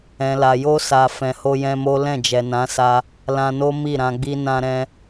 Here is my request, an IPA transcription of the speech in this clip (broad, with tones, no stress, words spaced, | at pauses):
ɛ̃˨la˨jo˧sa˨ fɛ̃˨ho˧jɛ̃˧mo˦ lɛ̃˦˨d͡ʒɛ˨nã˨˦sa˧ | lã˧no˦ mi˦˨ɾã˧ɡ͡bi˦ nã˧ɾɛ̃˧